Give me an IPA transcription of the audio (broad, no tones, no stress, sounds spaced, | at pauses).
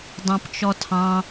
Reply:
dˤ ɑ̃ p t͡ʃ ɔ tʰ ɑ̃